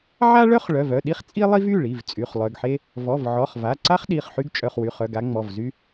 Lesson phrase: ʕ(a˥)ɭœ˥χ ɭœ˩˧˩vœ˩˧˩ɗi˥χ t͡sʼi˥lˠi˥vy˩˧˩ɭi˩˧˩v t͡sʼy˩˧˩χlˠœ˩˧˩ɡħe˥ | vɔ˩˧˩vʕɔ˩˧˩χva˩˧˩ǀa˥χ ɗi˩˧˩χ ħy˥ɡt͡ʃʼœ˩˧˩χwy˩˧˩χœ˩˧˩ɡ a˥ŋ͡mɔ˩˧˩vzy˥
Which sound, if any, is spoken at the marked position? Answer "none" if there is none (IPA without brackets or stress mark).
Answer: a˥